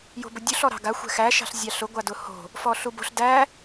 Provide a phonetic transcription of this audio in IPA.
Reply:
j o̤ b ʊ dʲ u ɬ ɔ ɾ ɑ̤ ɡ a xʷ ɛ̤ x æ ʃ ɑ̤ ɬ zʲ ɑ ɬ ʊ ɡʷ a d ʊ h o̤ | f ɔ ɬ u b o̤ ɬ d æ

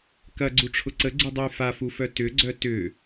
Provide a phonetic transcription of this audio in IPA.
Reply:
k ɐ ɡ͡ǀ u ʈ͡ʂʰ ʊ ǀ ə ɡ͡ǀ u dˤ u j f a f u f œ t ʏ ɡ͡ǀ œ t ʏ

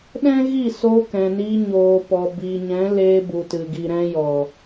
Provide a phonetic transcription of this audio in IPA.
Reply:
ɗ ɛ̃˦ ɣ i˦˨ s oː˧ k ɛ̃˨ n iː˧ ɲ oː˨ p ɔ˨ b i˨ ɲ ɛ̃˨˦ l eː˧ b u˨ t ɨ˨ ɡ i˨ ɾ ɛ̃˧ j ɔ˨

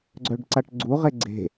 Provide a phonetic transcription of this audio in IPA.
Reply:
ɡ͡ǀ œ ɖ ǀ a ʈ ɡ͡ǀ u ʁ e ɡ͡ǀ e̤

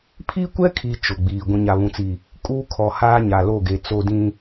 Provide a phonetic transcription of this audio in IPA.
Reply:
pʰ i˦ kʷ ɛ˦ kʰ i˨ t͡ʃ ʊ˨ ɡ͡b iː˨ ɡʷ ĩ˨ ɲ a˨ β ũ˨ t͡s i˨ | kʼ uː˦ kʰ ɔ˨ h aː˦ ɲ a˨ l o˦˨ ɡ e˨ t͡s o˦ d ĩ˦

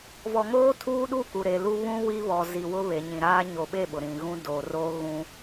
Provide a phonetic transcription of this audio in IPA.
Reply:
v ɔ˨ ŋ oː˦ tʰ uː˦ ɗ u˦˨ k u˨ ɾ e˨ l u˦ β ũ˦ w i˦ β ɔ˨ z i˨ w ʊ˦ β e˨ ɲ ĩ˨ ɾ aː˦ ɲ o˨ ɓ e˦˨ ɓ ʊ˨ ɾ ĩ˨ ɣ ũ˦ d oː˨ r oː˦ ɣ ũ˦

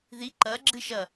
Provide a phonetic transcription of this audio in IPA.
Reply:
ð i ǃ ɐ ɡ͡ǁ ɨ ʃ ɐ

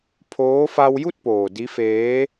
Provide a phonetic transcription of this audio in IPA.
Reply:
pʰ oː˧˥ f a˧ w j u˥˨ t̚ p oː˩ d i˧˥ f eː˧˥

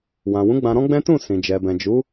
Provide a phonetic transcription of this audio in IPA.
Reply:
w ã˨ w ũ˨˦ ɡ͡b ã˧ ɾ ɔ̃˦ ɡ͡b ɛ̃˦ t ũ˦˨ s ĩ˨ d͡ʒ ɛ˨ b ɛ̃˨ d͡ʒ u˨˦

